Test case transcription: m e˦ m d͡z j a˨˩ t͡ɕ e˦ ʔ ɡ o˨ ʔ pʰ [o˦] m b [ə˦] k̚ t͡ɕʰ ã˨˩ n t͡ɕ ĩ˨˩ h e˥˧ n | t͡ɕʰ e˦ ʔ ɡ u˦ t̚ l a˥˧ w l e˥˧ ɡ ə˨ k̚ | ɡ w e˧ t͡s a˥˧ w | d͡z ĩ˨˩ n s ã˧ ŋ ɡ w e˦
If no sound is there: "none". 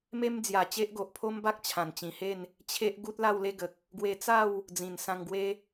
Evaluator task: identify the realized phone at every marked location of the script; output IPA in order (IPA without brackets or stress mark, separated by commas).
o˦, a˦